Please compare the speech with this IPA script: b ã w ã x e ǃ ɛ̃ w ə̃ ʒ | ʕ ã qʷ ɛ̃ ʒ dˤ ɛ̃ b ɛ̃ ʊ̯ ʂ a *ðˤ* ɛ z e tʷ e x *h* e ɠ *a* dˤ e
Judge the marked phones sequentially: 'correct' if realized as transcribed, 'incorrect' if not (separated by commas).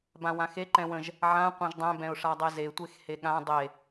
incorrect, correct, incorrect